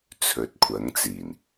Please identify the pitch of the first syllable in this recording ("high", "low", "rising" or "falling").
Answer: rising